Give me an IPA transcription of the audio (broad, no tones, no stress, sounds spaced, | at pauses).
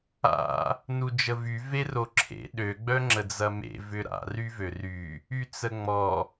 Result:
a̰ | n u d͡ʒ ə v y v e r o ǁʰ ḛ ɗ ø ɡ͡b œ ŋ͡ǁ ə d͡z ɐ m ḛ v ʏ ɾ a̰ r y v ø r y | y t͡s ə ŋ͡m ɔ